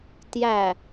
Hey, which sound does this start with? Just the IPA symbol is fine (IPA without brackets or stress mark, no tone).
t